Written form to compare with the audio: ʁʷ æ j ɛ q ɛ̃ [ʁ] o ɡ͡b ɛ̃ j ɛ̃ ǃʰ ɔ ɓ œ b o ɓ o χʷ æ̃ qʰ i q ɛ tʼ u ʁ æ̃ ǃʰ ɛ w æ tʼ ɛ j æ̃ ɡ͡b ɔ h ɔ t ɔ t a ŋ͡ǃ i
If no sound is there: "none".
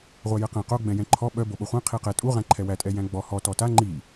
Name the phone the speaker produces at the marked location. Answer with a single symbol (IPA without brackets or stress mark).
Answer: q